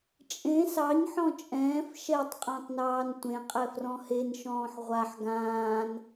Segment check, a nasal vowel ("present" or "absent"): present